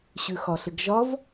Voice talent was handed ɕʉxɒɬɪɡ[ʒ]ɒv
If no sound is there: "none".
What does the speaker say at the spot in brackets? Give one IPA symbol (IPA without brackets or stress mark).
ʒ